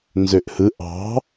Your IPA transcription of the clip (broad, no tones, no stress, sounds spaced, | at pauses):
n z ø ʔ h ɯ ʔ ɑ̤